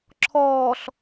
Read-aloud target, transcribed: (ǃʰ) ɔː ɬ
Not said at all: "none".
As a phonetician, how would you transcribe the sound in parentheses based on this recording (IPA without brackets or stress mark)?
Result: ǁʰ